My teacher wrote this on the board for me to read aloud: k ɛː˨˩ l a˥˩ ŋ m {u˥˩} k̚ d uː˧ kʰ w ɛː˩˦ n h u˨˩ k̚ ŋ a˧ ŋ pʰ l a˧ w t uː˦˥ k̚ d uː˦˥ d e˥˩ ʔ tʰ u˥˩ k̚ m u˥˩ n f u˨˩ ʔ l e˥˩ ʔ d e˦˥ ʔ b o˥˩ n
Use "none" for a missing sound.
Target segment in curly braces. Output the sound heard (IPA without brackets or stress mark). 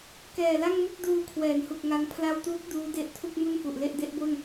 u˥˩